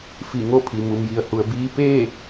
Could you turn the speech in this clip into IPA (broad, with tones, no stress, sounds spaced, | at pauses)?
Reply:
f i˧˩ ŋ o˥˨ pʰ i˩ m u˩ m j i˩ ə̯ h u˩ ə̯ b iː˧ p eː˥˨